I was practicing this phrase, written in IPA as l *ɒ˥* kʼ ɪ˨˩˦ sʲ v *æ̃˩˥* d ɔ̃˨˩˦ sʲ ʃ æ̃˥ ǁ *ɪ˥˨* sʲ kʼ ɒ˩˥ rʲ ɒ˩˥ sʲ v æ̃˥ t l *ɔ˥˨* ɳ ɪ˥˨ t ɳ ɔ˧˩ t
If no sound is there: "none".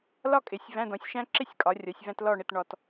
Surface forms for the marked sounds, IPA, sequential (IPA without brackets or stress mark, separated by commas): ɒ˥, æ̃˧˥˧, ɪ˥˨, ɔ˥˨